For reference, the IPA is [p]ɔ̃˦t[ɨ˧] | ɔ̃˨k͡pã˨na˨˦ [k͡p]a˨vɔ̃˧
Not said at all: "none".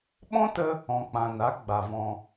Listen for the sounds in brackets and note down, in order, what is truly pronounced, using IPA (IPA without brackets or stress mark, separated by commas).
ɓ, ə˧, ɡ͡b